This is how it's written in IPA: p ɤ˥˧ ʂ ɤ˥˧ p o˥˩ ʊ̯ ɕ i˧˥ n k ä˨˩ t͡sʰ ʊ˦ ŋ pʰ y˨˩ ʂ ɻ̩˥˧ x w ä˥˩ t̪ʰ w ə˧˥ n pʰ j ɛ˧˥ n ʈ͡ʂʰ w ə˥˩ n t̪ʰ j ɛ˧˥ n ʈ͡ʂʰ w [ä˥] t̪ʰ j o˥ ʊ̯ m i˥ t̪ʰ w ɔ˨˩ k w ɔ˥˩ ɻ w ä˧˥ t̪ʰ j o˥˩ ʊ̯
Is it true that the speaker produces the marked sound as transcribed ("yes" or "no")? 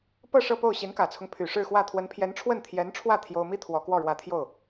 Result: no